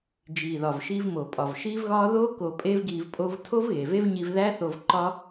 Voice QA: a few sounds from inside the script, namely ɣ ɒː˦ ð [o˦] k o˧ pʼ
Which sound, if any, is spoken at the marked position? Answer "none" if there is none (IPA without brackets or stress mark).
o˦